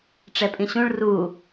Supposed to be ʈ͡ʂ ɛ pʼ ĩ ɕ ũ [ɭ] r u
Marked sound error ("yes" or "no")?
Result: no